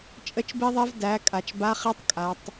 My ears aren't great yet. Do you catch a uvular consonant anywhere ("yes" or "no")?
yes